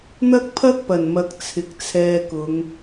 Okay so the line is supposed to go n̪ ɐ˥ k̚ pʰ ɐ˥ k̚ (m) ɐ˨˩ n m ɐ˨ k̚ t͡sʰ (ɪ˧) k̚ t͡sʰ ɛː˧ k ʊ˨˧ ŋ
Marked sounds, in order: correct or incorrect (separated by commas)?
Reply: incorrect, incorrect